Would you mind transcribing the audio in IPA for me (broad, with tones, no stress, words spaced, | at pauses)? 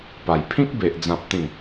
pa˨˩j pʰĩ˦k̚be˨ʔ d͡zã˨p̚t̪ĩ˨˩